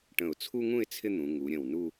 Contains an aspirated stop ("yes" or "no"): yes